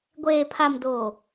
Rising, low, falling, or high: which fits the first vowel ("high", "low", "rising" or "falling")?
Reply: low